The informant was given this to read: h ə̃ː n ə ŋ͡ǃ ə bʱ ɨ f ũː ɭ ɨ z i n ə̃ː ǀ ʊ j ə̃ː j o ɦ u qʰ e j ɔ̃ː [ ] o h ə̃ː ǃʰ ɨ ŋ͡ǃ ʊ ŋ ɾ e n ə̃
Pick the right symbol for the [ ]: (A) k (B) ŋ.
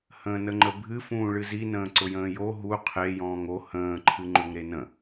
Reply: B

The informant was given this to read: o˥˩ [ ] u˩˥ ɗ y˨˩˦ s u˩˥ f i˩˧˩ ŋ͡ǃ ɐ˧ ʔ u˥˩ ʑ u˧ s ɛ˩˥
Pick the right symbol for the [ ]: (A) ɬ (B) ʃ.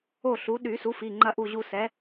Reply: A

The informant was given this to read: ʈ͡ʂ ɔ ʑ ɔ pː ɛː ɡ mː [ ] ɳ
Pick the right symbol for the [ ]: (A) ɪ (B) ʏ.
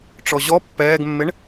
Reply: A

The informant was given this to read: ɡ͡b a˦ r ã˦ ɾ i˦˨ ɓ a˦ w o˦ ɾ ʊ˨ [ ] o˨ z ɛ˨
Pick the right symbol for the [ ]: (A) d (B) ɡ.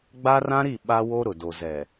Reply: A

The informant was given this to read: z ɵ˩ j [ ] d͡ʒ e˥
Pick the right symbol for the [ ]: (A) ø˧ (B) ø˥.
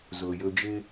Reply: A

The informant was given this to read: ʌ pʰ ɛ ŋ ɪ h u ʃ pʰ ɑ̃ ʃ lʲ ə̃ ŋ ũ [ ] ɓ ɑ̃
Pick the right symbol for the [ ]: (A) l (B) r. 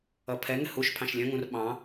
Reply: B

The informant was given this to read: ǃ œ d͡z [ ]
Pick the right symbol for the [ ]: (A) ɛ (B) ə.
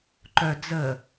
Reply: B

